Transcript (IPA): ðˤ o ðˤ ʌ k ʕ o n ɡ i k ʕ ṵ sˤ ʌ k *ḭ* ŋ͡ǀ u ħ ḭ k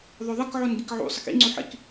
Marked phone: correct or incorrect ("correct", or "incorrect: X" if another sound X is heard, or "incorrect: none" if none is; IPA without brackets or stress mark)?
correct